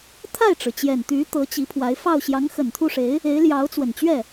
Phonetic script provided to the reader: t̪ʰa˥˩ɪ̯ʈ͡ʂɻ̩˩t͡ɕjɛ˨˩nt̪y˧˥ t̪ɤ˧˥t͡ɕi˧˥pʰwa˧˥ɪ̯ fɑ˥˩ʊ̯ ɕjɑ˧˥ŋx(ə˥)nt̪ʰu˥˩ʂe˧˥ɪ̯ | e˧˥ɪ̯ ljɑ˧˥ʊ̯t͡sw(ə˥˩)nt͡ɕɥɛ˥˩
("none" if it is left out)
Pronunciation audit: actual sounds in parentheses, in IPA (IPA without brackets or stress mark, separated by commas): ə˨˩, ə˨˩